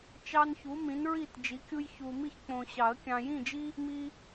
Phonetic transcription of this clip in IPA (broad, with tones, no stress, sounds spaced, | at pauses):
t͡ʃ ɑ˦ n ç u˨˥ m ĩ˨˥ n ɹ i˥˨ t d͡ʒ i˨˥ kʲ u˦ j ç u˨ m i˥˨ ç k͡p õ˨ ɕ ɑ˨˩˦ ə̯ kʲ ɑ̃˨ j ĩ˥˨ d͡ʒ i˦ | m i˦